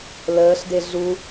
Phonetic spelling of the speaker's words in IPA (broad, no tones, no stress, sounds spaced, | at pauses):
l əː ɬ d e ɮ u